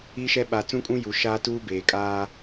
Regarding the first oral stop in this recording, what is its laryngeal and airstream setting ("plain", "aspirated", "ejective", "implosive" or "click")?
implosive